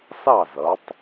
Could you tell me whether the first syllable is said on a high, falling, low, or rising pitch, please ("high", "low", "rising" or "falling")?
falling